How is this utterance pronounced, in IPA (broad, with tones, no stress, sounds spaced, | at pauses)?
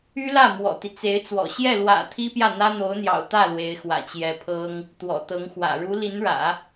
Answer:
y˥ l ä˥˩ m w ɔ̰˨˩ t̪ i˦ t͡s e˧˥ ɪ̯ t͡s w ɔ̰˨˩ ɕ j ɛ˥˩ l w ä̰˨˩ t̪ʰ i˥ p j ä˥˩ n̪ ä˥ n̪ o˧˥ ʊ̯ n̪ j ɑ̰˨˩ ʊ̯ t̪ ä˥˩ l w e˧˥ ɪ̯ x w ä̰˨˩ t͡ɕ j ɛ˧˥ pʰ ɤ˥ ŋ | t̪ w ɔ̰˨˩ t̪ ɤ˧˥ ŋ x w ä̰˨˩ ɻ u˧˥ l i˧˥ n ɻ ä̰˨˩˦